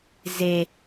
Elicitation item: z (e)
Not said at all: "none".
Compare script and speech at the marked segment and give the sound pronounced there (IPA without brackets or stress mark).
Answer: e